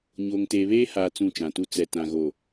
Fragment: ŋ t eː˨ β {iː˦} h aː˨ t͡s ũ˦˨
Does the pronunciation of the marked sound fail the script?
yes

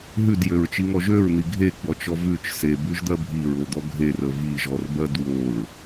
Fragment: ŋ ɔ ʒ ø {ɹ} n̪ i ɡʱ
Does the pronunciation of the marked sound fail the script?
no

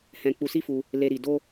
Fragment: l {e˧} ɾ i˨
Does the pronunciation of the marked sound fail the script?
no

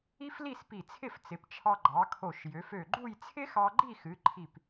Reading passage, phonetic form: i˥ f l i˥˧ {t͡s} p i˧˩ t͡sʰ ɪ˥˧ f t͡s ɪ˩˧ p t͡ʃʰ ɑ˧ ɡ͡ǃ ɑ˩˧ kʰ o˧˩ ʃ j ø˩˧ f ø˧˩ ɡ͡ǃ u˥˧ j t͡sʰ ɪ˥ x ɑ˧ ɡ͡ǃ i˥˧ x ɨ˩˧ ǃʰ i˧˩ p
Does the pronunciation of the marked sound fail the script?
yes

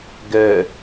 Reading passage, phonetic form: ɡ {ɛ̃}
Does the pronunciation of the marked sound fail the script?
yes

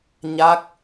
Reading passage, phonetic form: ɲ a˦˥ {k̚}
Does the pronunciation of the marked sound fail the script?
no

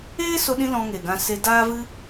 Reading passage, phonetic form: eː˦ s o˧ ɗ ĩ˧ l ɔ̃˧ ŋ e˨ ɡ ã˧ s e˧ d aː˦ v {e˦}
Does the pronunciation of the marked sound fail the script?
yes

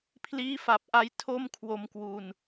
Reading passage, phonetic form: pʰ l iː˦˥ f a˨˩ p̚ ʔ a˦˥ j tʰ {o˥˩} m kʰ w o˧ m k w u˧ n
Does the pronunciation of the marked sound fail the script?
no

